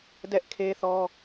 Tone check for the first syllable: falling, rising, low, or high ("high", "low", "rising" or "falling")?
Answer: high